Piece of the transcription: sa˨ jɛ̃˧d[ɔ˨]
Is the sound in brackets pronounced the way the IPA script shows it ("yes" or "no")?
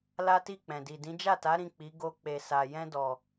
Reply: yes